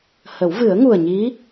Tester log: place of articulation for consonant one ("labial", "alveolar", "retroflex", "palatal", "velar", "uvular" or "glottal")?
glottal